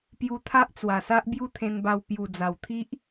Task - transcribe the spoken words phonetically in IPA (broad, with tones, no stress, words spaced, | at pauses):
pju˧t̪ʰa˦ʔt͡swa˨˩sa˦ʔ bju˥˧t̪ʰẽ˧nba˧w pju˨˩d͡za˨˩wt̪ʰi˦ʔ